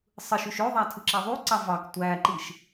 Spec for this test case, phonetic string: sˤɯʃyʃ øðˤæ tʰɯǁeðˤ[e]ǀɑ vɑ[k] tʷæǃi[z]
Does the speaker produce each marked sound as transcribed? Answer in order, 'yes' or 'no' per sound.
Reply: no, yes, no

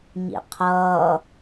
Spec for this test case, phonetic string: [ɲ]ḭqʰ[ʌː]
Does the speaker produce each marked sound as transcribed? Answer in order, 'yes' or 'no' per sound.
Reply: yes, yes

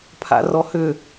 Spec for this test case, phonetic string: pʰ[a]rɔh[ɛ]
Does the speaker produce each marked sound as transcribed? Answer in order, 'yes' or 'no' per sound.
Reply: no, no

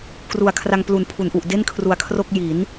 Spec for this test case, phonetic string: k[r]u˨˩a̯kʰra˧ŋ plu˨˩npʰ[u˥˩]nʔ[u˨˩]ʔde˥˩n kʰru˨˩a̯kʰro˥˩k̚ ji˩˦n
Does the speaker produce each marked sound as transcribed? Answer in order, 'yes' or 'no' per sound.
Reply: yes, no, yes

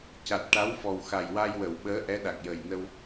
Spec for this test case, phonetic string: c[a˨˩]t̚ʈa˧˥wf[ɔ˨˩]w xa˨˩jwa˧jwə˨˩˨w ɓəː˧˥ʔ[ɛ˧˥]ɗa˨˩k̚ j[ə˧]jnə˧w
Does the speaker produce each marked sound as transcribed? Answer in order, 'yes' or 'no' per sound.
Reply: yes, yes, yes, no

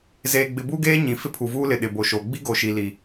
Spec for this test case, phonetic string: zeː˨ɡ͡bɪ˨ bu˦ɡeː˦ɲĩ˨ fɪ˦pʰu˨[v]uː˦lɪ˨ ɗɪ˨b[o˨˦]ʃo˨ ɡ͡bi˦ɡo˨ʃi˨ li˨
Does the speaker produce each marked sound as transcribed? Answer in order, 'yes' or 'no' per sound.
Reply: yes, no

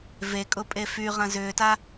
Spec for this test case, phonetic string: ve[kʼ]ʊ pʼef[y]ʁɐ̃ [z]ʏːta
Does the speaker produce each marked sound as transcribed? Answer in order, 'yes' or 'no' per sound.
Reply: yes, yes, yes

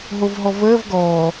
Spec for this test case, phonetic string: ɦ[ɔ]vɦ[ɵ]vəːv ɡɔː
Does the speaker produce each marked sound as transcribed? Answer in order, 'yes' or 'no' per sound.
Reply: no, no

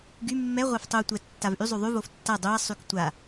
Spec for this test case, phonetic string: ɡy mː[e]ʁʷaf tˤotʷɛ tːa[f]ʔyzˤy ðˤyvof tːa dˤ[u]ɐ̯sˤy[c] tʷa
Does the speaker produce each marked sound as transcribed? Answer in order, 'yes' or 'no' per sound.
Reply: no, no, no, no

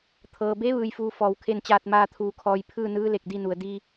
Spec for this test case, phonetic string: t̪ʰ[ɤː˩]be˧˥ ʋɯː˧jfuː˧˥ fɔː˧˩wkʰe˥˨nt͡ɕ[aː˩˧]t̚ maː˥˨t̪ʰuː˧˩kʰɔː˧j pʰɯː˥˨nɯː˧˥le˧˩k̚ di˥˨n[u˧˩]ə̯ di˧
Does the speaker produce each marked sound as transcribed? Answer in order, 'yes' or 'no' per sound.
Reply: yes, no, no

